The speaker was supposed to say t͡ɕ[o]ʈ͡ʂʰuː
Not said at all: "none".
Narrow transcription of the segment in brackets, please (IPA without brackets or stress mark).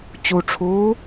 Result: u